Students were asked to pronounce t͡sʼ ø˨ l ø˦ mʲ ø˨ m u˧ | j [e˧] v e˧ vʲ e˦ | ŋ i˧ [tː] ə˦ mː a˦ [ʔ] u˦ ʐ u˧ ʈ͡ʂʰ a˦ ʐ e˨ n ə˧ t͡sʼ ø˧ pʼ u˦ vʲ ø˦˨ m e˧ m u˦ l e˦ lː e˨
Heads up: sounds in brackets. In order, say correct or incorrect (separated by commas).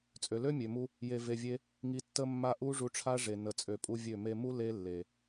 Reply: correct, correct, correct